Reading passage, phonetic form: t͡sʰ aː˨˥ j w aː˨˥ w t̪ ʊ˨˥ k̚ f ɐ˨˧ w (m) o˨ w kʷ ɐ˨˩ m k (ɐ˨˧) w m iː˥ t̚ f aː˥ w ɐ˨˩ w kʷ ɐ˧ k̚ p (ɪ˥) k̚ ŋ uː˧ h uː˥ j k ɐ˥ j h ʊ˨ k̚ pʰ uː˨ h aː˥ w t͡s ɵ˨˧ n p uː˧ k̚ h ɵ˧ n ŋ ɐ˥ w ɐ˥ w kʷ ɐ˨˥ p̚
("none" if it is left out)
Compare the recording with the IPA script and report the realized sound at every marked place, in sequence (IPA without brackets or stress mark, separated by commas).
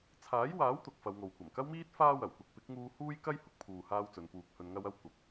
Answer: ŋ, ɐ˥, ɪ˨˥